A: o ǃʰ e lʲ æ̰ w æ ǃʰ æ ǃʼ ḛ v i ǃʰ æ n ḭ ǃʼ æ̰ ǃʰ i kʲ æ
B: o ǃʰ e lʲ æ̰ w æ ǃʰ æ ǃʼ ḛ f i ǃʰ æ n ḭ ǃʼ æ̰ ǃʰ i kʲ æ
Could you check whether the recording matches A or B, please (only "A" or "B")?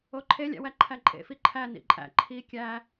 B